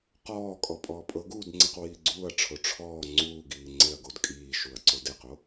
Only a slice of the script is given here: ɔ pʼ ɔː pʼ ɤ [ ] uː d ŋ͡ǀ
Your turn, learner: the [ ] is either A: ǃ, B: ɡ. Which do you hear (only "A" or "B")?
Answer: B